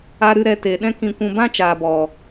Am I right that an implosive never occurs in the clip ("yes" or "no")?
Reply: no